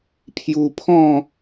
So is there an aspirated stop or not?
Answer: yes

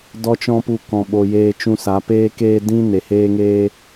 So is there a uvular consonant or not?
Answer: no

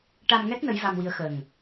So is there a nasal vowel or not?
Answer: no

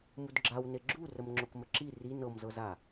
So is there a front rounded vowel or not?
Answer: no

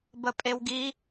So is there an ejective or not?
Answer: yes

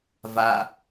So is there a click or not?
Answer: no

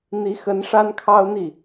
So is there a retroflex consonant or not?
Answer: yes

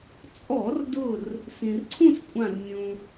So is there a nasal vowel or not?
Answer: yes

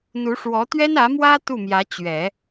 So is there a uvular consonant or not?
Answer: no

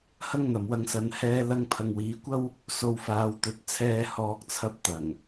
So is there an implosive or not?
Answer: no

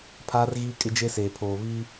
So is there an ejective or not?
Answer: yes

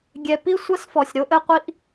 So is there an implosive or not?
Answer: no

